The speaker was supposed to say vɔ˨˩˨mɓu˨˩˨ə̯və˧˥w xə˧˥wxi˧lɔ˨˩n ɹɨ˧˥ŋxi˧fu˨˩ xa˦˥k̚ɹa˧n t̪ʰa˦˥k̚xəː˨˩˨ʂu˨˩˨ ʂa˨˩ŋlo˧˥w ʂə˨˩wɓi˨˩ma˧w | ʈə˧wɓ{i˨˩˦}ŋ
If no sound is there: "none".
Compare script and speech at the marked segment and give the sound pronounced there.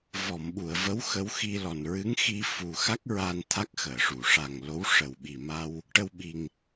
i˨˩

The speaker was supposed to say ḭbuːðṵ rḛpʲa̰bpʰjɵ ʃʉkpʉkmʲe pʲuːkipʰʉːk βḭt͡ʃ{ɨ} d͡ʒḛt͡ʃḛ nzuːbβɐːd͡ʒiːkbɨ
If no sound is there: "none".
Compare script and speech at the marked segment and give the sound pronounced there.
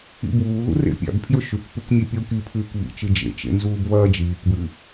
ɨ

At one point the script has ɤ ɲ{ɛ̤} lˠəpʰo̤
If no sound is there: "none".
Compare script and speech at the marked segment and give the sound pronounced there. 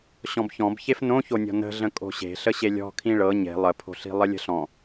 e̤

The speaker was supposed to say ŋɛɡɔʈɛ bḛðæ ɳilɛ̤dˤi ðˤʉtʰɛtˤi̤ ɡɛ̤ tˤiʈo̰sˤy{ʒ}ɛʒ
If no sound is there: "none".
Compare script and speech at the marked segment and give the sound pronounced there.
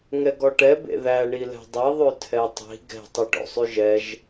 ʒ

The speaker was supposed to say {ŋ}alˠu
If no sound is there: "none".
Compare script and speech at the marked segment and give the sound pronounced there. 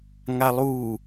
ŋ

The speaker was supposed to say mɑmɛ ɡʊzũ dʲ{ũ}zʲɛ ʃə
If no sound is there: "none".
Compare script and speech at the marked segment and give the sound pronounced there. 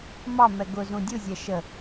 u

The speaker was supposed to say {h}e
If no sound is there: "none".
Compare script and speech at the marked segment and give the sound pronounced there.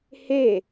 h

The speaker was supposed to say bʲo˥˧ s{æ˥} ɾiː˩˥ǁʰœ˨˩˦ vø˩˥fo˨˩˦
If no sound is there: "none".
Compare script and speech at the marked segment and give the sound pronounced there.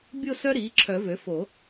œ˥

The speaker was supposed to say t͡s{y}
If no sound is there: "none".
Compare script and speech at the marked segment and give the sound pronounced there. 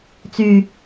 y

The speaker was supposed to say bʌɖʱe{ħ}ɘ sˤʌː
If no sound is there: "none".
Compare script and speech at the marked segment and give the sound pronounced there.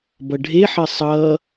ħ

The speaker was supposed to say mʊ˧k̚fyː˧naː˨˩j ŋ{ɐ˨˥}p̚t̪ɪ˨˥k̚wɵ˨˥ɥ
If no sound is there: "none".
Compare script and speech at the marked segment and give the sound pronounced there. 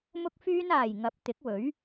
ɐ˨˥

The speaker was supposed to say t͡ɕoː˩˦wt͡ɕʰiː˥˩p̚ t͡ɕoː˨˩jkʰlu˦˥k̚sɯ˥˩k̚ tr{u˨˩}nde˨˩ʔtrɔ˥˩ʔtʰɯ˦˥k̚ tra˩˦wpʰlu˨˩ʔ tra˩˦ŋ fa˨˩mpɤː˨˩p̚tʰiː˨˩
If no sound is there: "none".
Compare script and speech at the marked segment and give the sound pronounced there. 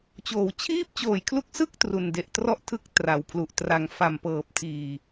u˨˩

